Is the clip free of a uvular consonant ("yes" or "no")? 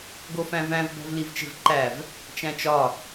yes